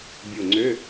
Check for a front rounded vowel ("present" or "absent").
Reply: present